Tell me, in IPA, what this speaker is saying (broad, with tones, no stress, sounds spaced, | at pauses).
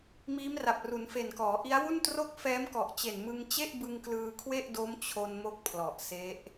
m iː˦˥ m r a˨˩ p̚ r u˩˦ n f e˨˩ n k ɔː˩˦ ʔ i˦˥ a̯ w u˥˩ n t r o˥˩ k̚ f ɛː˦˥ m k ɔ˨˩ ʔ t͡ɕ e˨˩ n m ɯ˧ ŋ t͡ɕ e˥˩ ʔ b ɯ˧ ŋ k l ɯː˧ kʰ w e˥˩ ʔ d o˦˥ m t͡ɕʰ o˧ n m o˥˩ k̚ pʰ l ɔ˨˩ ʔ s e˦˥ ʔ